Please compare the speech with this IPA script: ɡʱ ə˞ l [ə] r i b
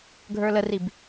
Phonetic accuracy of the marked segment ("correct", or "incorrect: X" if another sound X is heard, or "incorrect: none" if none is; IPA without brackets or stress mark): correct